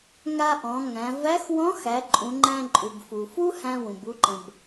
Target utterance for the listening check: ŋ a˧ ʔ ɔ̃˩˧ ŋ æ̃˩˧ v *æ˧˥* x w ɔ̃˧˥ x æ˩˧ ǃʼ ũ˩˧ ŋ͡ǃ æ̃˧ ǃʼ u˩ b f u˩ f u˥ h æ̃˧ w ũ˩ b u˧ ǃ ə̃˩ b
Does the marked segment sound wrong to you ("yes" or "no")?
no